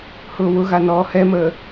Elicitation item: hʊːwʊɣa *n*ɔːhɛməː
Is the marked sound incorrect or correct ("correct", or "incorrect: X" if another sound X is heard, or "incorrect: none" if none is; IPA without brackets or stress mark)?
correct